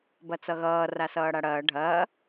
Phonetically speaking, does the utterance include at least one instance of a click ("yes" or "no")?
no